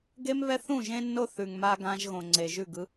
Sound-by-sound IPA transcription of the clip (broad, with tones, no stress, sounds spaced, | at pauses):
ɡ e˦ m β ɛ˦ θ ũ˦˨ ʒ ẽ˦ nː o˦ θ ʉ˨ ŋ m a˦ ɡ ã˦ ʒ ɣ õ˨ ŋ͡ǀ e˨ ʒ ʉ˦˨ ɡ ɯ˦